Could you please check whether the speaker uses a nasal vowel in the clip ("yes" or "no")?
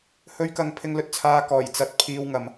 no